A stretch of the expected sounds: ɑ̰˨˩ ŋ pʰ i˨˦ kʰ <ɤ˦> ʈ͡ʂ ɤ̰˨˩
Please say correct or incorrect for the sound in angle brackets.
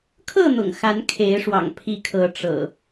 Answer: incorrect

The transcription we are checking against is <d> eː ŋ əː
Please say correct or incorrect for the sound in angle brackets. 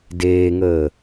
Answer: correct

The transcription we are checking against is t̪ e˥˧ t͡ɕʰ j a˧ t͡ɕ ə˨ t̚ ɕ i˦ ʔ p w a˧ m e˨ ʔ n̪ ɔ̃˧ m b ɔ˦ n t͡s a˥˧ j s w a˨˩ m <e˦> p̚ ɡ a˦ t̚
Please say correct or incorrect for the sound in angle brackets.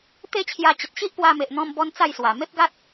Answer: correct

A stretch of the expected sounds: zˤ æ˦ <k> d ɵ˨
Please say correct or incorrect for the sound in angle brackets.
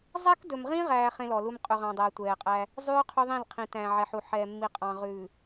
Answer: correct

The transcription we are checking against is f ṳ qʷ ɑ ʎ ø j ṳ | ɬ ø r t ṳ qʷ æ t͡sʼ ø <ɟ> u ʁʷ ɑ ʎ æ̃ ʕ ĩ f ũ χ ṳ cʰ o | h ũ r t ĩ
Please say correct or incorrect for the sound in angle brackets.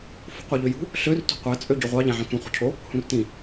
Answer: correct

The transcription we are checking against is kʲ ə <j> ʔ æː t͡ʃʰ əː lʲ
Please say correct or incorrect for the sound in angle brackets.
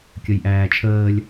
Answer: correct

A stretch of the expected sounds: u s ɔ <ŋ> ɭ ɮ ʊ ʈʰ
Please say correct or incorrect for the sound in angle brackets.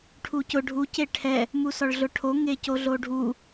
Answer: incorrect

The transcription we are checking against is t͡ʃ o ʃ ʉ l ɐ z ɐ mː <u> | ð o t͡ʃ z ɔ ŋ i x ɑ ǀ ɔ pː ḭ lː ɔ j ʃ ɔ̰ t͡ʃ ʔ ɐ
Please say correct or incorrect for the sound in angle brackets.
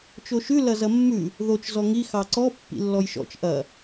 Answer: incorrect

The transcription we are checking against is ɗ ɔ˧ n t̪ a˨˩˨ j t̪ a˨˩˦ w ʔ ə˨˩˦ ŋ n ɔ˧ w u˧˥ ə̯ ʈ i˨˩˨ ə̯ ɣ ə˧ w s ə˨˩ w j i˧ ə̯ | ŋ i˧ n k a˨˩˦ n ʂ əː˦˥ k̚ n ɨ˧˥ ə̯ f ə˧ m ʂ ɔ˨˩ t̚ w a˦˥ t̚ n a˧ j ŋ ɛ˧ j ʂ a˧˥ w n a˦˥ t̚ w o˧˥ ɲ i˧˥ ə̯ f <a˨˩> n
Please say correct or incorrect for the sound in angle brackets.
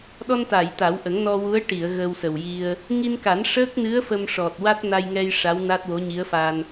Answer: incorrect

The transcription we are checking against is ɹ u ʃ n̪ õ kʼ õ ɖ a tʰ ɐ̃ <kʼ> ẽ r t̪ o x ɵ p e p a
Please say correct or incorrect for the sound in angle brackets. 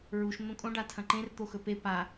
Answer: incorrect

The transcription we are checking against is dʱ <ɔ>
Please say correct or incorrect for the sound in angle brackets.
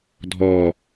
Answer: correct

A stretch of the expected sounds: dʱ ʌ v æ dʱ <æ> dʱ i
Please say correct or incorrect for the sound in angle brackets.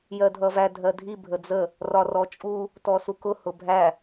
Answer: incorrect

